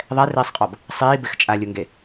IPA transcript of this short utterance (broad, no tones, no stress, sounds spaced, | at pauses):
ðˤ ɛ r iː sˤ qʼ ɔ b | sˤ iː b ɪ x t͡ʃʼ a lʲ ʊ ŋ ɡ e